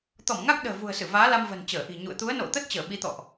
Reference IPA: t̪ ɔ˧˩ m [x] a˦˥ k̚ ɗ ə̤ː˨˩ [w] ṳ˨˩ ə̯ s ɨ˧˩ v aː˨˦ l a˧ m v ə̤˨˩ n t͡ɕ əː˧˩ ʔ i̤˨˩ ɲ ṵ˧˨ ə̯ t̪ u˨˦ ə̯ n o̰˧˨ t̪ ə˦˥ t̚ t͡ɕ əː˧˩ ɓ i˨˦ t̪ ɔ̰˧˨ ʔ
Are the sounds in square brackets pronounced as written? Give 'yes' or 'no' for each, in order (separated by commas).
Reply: no, no